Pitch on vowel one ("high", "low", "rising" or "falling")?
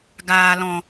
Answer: low